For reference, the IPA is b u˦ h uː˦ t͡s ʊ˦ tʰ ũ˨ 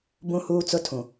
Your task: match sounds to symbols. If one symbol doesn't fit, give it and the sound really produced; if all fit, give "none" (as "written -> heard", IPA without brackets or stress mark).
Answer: u˦ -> ũ˦